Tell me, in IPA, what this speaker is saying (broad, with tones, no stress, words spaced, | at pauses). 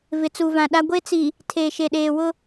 vɪ˨t͡su˨vã˨ɗa˦ ɡʷe˦t͡si˨ | tʰeː˨ʃe˨ɗeː˨wʊ˦